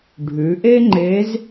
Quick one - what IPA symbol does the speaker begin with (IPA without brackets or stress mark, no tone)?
ɖʱ